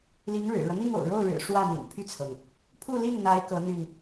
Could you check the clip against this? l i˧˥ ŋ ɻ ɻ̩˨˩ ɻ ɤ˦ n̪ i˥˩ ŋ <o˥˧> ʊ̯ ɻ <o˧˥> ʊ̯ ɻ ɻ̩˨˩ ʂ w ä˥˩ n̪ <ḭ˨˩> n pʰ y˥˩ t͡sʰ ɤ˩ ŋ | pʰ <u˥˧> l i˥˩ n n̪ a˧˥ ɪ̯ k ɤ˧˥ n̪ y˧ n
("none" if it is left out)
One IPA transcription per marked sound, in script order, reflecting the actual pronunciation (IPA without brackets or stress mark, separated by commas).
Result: o̰˨˩, o˥˩, ḭ˨˩, u˥˧